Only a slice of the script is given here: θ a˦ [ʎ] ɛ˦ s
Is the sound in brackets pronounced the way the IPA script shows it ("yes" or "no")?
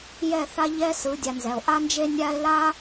yes